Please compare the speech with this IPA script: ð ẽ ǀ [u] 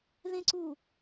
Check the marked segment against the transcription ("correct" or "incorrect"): correct